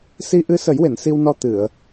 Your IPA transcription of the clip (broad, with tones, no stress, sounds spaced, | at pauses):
s i˧ ʔ ɨ˧ s ə˨˩˦ j w e˨˩˨ n s i˧ w n ɔ˧ t̪ ɨ˨˩˨ ə̯